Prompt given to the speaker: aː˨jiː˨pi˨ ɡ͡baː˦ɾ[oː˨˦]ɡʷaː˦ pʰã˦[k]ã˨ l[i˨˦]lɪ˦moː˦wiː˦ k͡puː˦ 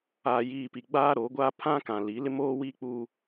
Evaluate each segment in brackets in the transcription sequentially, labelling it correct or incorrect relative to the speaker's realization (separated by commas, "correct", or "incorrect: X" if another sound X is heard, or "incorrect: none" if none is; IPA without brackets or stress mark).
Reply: correct, correct, correct